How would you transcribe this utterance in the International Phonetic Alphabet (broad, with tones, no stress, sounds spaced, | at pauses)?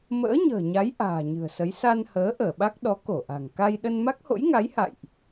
m ə̰ː˧˥ ɲ ə̤ː˨˩ ɲ a˨˦ j ʔ a̤ː˨˩ ɲ ɨ̤˨˩ ə̯ s ə˨˦ j s a˧ n h əː˨˦ ʔ əː˧˩ ɓ a˦˥ k̚ ɗ ɔ˨˦ k o˧˩ ʔ a̤˨˩ ŋ k a˧ j ɗ ə˧ n m a˦˥ k̚ h o̰˧˥ j ŋ a˨˦ j h a̰˧˨ j ʔ